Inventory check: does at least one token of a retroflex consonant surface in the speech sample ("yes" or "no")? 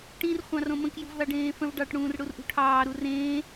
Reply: yes